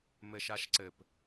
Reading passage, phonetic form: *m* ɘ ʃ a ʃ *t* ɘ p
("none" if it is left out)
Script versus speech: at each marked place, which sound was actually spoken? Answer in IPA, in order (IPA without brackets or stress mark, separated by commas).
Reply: m, ǀ